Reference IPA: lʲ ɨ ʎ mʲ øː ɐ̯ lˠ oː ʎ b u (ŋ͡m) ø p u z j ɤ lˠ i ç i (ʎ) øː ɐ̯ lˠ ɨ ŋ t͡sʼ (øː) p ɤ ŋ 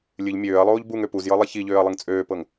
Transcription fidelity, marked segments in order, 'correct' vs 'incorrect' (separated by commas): incorrect, correct, correct